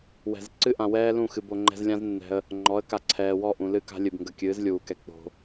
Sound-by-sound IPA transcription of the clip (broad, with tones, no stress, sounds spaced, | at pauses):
w ɛ̤˨ z ǀ ɨ˦ ʔ ã˨ w ɛː˦ l ũ˦˨ x ɨ˨ b o˨ ŋ͡ǃ ɛ̤˧ z lʲ ã˦ z nː ɛ̤˧ ə̯ | ŋ͡ǃ ɔ˨˦ ə̯ k a˨ ǀʰ ɛː˨ w ɔ˦˨ ʔ ũ˨ l ɨ˦˨ k a̤˦ lʲ ɨ˨ b ŋ ɡ ə˧ kʲ ɨː˨˦ z lʲ uː˨ k ɛ˧ k͡p o̤˧